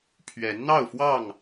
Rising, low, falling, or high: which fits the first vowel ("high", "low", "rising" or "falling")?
rising